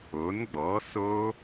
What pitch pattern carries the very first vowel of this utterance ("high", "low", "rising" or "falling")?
rising